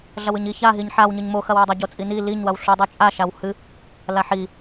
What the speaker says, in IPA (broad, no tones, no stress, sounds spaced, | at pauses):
ɮ ɐ w ɨ ɲ i ç a ɦ i ɲ ħ a w ɲ ɨ ɲ m o x ɐ w o dˤ ɐ ɟ o t͡sʼ i n i l i ɲ w ɐ w ɬ u dˤ u t͡ʃʼ a ʃ a w h ɨ | l a ħ i